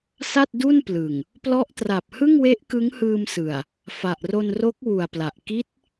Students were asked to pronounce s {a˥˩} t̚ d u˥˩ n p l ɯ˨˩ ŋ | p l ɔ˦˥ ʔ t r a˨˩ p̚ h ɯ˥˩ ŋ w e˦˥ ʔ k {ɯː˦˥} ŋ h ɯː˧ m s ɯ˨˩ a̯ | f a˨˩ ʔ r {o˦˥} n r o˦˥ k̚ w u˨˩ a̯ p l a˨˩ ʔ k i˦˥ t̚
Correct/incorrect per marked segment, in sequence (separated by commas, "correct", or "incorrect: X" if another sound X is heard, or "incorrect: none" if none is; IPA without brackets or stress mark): correct, incorrect: ɯ˦˥, incorrect: o˧